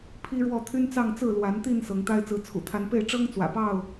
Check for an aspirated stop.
present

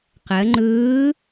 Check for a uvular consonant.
present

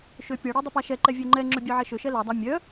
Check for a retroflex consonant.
present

